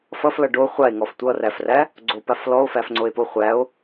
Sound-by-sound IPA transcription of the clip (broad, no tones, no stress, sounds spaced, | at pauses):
f ʌ f l ʌ ɖ o χʷ a e̯ ŋ ɔ f tʷ ʌ r æ f r æ | ɡ͡ǀ o p a f l ɔ o̯ f æ f ŋ͡ǀ o e̯ p o χʷ æ o̯